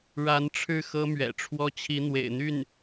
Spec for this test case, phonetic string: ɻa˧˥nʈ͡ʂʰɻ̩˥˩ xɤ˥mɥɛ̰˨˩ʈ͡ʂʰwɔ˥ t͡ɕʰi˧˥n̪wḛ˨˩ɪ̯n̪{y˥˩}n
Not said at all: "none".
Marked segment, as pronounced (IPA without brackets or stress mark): y˥˩